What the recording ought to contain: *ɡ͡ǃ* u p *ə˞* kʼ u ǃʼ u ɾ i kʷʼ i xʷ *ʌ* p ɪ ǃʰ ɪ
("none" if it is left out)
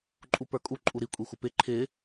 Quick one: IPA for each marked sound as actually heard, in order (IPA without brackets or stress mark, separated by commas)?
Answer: ǃʼ, ə˞, ʌ